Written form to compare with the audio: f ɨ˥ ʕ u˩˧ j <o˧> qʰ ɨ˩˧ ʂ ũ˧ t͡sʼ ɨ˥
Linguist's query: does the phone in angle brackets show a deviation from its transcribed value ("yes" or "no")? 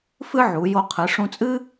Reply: no